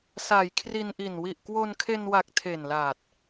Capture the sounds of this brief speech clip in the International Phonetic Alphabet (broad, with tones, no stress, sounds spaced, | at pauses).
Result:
s a˩˦ j kʰ r i˧ n ʔ i˨˩ n w i˨˩ ʔ k w o˧ n kʰ e˧ n w a˨˩ k̚ tʰ e˨˩ n l aː˨˩ t̚